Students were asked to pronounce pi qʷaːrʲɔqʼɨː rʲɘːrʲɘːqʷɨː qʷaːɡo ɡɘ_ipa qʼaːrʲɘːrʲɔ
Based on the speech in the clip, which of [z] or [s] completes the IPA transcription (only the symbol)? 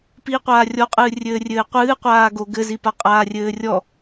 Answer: z